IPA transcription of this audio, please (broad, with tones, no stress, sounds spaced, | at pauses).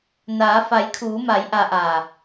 n aː˩˧ f a˩˧ j kʰ uː˩˧ m a˩˧ j ʔ a˧ ʔ a˧˩